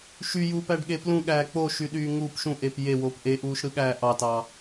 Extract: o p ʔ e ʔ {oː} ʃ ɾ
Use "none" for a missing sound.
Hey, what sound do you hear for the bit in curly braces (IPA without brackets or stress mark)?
uː